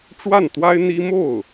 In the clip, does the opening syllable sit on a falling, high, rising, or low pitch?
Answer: falling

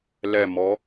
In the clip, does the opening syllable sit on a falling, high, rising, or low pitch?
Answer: falling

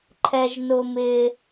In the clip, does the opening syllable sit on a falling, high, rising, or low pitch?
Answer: high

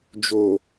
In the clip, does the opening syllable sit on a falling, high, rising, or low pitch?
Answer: low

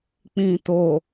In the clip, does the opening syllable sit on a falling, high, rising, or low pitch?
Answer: low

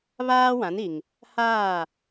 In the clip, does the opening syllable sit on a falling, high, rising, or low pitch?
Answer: high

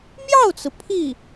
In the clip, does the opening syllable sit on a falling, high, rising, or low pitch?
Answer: falling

